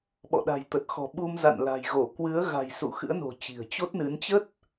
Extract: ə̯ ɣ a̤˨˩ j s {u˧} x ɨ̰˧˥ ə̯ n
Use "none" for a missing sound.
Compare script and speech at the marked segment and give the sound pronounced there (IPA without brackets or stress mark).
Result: ṵ˧˨